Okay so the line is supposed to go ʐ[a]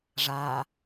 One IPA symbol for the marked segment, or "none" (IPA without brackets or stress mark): a